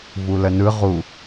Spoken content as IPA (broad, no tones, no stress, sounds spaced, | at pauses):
v u l ə n ɯ ʁ u